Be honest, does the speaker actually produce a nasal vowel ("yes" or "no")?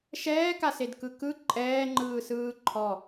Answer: no